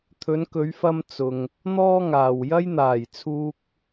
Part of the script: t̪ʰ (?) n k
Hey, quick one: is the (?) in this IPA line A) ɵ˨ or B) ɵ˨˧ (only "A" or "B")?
B